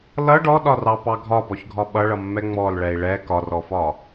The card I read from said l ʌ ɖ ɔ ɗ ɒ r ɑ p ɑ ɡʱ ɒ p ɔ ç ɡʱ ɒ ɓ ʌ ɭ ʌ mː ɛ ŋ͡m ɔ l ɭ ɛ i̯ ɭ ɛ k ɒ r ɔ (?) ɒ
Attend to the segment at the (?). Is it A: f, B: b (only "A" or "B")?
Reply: A